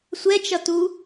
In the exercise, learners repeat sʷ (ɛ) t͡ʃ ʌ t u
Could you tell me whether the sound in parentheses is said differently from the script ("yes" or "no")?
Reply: no